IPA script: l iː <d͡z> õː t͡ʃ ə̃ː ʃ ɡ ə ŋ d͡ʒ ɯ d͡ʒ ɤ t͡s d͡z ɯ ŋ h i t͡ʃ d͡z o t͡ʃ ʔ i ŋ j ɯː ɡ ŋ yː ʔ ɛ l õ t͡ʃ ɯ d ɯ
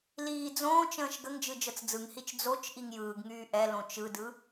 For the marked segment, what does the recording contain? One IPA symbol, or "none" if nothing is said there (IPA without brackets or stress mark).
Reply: d͡z